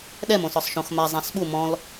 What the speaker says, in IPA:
ɗ ɛ m õ s ɔ sˤ ʃ õ x m a zˤ ã s ɓ u m ɔ̃ l

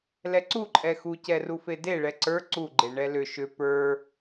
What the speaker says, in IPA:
l ɛ ǀ u ǃʼ ɛ x u c ɛ r u f e d e ɭ ɛ ǀ ə˞ ǀ u ɡ͡ǃ e ɳ ɛ l ʏ ʃ ʏ p ə˞

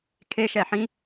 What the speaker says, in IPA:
kʰ e ʃ ɛ ħ ĩ

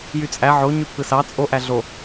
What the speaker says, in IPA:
j y t͡sʼ æ ʕ o ɲ y pʰ ɯ s ɑ t͡sʼ o ʔ æ ɮ o

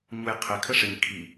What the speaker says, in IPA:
ɲ u j qʰ ɪ kʰ ə ʂ ɪ ɲ kʰ i

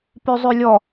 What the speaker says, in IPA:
p y zˤ y lʲ ɔ

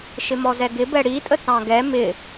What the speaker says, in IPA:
ʃ ɪ m ɔ z ɛ ɡ ɪ b ɛ ɽ i tʼ ə t ɑ̃ ɡ ɛ m ɪ

